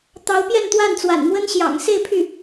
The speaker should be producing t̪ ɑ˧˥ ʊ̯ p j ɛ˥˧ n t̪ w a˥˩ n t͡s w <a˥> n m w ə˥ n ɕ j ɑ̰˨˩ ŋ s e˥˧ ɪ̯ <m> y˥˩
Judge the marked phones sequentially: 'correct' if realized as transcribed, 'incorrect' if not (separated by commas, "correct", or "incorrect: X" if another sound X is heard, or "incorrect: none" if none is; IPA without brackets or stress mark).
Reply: incorrect: a̰˨˩, incorrect: pʰ